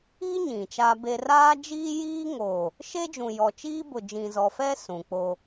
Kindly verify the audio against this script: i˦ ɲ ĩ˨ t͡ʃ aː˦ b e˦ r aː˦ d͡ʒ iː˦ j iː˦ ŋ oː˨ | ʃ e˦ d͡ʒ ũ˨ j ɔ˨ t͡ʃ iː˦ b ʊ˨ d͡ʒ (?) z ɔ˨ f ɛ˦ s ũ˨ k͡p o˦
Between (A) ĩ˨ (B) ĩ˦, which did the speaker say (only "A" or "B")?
A